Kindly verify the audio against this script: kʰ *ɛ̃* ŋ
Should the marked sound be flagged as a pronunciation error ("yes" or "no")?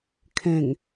no